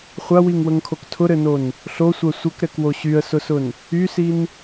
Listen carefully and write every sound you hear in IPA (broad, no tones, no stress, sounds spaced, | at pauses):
χʷ a w i ŋ w ə ŋ kʰ o k tʰ ʊ ɾ ɘ n o n | ɬ o sʷ ɜ sʷ ɘ k ɾ ɛ k w o ɕ y ə̯ s ʊ s ʊ n | y s i n